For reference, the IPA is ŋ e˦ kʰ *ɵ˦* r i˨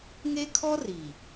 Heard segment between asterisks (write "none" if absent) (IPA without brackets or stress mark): ɔ˦